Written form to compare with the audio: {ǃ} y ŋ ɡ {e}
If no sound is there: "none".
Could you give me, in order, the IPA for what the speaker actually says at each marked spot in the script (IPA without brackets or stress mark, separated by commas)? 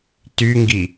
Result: t, i